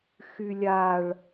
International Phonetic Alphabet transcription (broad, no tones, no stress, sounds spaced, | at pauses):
x y lʲ a ɭ